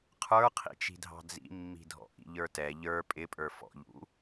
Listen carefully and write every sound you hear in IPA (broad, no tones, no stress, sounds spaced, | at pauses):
qʰ ə˞ qʰ ḭ t͡ʃ i̤ dʱ ɑ̤ d͡z ḭ mː i̤ dʱ ɔ̰ ʔ ḭ ʎ ə˞ t ɛ ʎ ə˞ pʼ ɪ pʼ ə˞ f ɔ̰ ʎ ṵ